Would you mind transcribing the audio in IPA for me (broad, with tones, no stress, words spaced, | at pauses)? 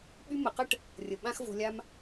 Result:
ɓy˧mə˨qə˦ʈ | rʲə˨ ɓã˦xvo̤˧ lʲa˧m